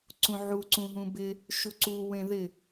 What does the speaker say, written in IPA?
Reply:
ǀ ũ ʕ u ǀ ũ ɦ ũ b ɪ | ʃ u ǀ u w ẽ ð ɪ

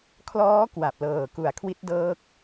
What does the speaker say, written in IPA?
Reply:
kʰ l ɔː˦˥ k w a˨˩ p̚ l ɤː˨˩ k u˨˩ a̯ kʰ w i˦˥ t̚ d ɤː˦˥ k̚

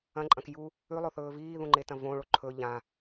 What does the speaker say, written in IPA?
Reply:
ɐ̃ ǃʼ ɐ̃ k j u | ʉ lˠ o θ ɵː v iː ð ũ ŋ͡ǃ e t ɐ̃ v õ ɭ o ǃʰ ɵ ʎ ã

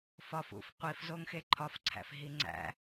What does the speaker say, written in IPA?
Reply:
f ɒ f ṵ f qʷ i f z o ŋ x e ǃʰ ɒ f ǀʰ æ̰ f ɦ i ŋ͡ǀ æ̰

